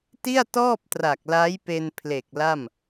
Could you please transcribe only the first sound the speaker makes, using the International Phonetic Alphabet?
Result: t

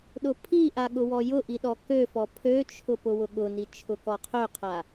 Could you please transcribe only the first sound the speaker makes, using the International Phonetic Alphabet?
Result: ɗ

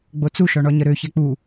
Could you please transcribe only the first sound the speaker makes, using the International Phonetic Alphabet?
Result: ɡ͡b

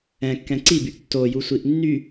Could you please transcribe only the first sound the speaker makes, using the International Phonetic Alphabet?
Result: ɛ̃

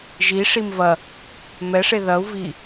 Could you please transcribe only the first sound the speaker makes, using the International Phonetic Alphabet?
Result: ʒ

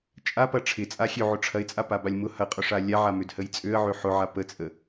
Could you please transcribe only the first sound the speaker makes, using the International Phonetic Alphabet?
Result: t͡ʃʼ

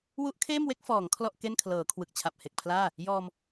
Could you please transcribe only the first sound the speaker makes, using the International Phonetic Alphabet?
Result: w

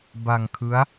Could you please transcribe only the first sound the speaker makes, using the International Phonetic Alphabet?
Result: b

